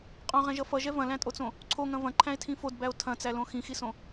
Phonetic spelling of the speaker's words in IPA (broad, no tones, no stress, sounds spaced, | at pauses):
qʼ õ ʁ ɛ̃ ʒ ʌ f ʌ ʒ ɛ v ɐ̃ l æ̃ tʼ o t͡s õ | ǀʰ o ŋ ɐ̃ v ɐ̃ ǃʰ æ̃ e̯ tʰ ĩ f o d b æ o̯ tʰ ɐ̃ t͡s æ l õ x ĩ x i s õ